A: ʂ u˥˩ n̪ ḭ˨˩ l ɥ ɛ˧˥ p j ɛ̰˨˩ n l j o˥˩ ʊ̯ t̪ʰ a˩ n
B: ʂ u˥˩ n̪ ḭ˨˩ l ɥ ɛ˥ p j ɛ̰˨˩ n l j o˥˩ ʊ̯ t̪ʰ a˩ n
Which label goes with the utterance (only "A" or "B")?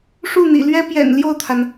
B